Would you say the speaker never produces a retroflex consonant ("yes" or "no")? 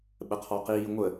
yes